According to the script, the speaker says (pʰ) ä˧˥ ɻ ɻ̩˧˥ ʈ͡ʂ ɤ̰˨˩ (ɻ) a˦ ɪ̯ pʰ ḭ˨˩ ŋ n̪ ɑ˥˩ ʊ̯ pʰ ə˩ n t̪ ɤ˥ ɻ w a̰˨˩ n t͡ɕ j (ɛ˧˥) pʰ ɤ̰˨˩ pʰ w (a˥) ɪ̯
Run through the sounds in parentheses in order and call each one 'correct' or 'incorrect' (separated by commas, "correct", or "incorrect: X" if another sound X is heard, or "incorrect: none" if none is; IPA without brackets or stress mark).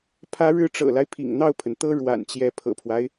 correct, incorrect: l, correct, incorrect: a˦